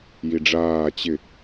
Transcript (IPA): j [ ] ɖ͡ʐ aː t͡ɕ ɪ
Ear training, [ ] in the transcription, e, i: i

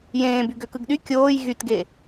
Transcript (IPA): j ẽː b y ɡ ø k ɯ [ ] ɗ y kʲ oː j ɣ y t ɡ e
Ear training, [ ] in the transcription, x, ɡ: ɡ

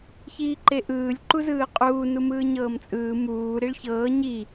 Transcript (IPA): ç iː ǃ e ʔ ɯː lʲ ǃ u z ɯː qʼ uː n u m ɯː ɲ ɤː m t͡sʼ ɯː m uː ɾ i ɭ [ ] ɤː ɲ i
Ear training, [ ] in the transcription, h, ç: ç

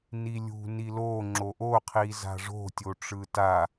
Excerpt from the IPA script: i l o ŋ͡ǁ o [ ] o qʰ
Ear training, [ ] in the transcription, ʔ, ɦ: ʔ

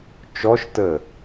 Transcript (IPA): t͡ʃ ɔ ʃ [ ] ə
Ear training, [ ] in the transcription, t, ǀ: t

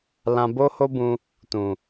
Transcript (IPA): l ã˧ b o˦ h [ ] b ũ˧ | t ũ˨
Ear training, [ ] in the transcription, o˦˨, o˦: o˦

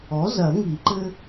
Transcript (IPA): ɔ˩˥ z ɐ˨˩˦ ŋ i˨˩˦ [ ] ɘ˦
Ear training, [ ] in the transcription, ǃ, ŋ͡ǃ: ǃ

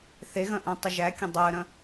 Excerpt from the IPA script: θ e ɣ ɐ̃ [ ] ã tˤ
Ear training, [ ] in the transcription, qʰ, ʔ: ʔ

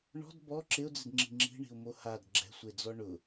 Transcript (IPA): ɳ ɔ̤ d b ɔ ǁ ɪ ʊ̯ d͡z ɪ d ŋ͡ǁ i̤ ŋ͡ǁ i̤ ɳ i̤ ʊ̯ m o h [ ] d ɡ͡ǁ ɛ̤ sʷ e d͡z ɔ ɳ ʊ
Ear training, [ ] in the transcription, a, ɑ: a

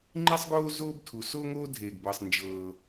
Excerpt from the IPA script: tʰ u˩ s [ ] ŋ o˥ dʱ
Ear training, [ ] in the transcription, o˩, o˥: o˥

